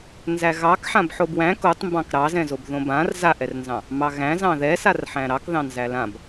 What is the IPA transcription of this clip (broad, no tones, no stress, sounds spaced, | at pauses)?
n z æ ɣ ɑ k ħ ã b ħ o b w æ̃ k o tˤ m b ɑ̃ k ɾ ɑ z ɛ̃ z o b ð õ b ã r z a ʔ ɛ r n z ɑ̃ | m ɑ ɣ æ̃ z ɑ̃ ð ɛ s a r ħ æ̃ ɾ ɑ k ð ɑ̃ n z æ l ã b